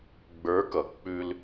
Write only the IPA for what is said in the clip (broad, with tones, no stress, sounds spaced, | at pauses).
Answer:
ɡ͡b ə˞˧˥ k ʌ˩˧ k͡p ʉ˧ l